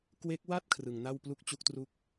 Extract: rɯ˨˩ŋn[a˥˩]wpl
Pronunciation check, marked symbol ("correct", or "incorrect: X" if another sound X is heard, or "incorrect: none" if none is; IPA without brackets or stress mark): correct